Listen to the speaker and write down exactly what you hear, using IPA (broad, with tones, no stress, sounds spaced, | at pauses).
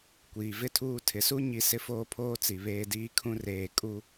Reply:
kʷ iː˨ v ɪ˦ tʰ uː˦˨ tʰ ɪ˨ s u˦ ɲ i˦˨ s ɪ˦ f oː˦ pʰ oː˦ t͡s i˨ β eː˦ d iː˦ kʰ ũ˦ r eː˨ kʼ u˦